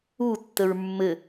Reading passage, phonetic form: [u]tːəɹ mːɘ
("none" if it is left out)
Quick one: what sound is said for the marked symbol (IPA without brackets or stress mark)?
u